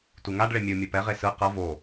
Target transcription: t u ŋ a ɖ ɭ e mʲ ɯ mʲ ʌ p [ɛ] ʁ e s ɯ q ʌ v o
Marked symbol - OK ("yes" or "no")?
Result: yes